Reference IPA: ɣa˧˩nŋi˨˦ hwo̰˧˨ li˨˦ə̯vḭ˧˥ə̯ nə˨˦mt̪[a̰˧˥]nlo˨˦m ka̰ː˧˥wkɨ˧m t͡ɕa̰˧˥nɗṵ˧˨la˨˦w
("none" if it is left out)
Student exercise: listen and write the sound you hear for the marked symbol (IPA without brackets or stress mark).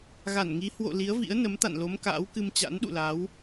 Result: a̰˧˨